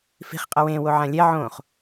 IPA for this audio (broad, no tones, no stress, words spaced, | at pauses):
fi̤χ qʼʌwẽ woʕãlʲɛ ʕõχ